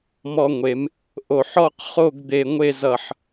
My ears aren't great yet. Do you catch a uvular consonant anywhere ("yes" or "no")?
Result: yes